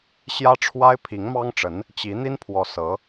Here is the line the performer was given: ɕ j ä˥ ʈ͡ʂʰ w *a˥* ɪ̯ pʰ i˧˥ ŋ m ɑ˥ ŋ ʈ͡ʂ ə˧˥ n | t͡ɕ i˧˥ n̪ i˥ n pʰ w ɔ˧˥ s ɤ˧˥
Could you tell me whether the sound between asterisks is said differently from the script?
no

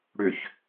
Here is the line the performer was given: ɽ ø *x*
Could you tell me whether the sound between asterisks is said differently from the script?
yes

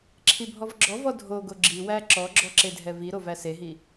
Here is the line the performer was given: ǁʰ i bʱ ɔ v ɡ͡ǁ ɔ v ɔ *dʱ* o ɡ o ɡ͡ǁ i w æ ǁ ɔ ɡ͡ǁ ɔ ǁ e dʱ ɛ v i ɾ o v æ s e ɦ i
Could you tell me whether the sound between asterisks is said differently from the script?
no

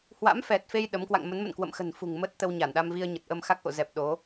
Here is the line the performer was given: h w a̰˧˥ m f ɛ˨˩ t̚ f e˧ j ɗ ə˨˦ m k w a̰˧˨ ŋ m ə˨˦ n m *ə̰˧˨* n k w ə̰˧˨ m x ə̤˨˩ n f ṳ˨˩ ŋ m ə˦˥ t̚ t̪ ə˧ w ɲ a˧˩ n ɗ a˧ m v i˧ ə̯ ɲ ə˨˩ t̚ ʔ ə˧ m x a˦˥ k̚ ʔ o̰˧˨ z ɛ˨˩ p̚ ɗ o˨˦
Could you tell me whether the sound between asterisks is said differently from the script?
no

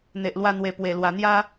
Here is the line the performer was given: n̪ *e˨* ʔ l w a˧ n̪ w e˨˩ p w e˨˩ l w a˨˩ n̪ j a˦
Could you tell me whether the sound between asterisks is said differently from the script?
no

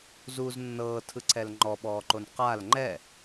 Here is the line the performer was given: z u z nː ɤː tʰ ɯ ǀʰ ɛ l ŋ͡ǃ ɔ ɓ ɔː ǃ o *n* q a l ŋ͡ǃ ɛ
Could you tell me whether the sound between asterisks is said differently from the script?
no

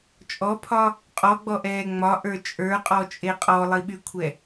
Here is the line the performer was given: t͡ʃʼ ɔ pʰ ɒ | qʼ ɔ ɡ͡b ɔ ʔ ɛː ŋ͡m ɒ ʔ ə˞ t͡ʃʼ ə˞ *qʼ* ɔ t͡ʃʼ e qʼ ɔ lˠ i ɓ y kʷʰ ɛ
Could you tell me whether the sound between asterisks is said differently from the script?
no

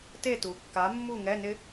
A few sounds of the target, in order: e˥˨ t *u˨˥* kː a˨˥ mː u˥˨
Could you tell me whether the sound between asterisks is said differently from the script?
yes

